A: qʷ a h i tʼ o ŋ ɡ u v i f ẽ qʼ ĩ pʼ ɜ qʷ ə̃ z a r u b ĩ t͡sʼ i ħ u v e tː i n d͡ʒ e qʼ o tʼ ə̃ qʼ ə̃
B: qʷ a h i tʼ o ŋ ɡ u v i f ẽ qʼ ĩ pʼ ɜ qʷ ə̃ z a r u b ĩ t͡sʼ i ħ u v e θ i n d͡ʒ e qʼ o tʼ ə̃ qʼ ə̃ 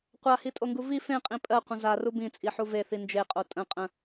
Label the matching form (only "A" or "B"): B